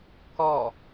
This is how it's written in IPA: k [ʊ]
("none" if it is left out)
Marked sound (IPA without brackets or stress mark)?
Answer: ɔ